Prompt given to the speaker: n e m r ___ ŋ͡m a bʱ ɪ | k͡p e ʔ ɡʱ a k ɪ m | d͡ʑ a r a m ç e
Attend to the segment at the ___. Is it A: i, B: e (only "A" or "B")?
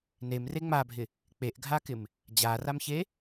B